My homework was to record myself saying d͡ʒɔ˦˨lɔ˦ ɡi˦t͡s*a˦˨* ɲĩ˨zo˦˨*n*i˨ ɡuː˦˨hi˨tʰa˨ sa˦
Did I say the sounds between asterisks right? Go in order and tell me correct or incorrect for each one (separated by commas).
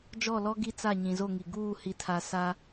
correct, incorrect